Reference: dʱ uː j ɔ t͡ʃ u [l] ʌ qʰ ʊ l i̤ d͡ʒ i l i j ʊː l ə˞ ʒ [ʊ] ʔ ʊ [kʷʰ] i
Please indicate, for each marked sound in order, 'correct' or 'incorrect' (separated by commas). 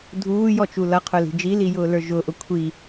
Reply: correct, correct, correct